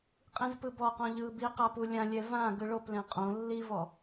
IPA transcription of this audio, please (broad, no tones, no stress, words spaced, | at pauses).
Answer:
qʼĩzpɯbɔqɔ̃ ʎɯːbiqa pulʲãlʲɛ vã ɡɯɭoplẽ qʼõ lːivɔ